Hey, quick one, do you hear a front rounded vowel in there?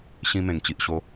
no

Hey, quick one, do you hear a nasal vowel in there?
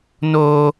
no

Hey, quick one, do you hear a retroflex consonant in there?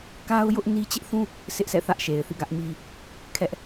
no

